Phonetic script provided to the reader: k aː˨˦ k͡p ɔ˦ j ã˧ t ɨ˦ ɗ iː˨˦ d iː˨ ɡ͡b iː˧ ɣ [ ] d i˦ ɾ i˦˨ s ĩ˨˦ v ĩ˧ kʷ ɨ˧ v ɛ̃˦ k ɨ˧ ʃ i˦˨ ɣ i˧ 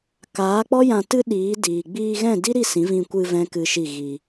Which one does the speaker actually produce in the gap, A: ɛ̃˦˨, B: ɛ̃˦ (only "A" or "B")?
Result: A